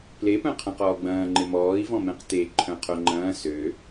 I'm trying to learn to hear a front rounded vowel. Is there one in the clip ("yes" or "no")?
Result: yes